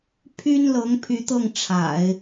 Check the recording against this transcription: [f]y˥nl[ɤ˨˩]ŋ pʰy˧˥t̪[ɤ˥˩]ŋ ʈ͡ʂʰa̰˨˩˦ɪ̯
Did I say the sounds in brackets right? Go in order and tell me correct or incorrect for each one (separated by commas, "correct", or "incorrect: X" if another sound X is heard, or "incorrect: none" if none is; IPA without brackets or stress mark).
incorrect: pʰ, incorrect: ɤ˧˥, correct